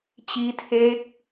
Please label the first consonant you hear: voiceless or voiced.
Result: voiceless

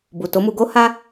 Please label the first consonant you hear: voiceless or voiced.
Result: voiced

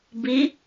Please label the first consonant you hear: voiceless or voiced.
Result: voiced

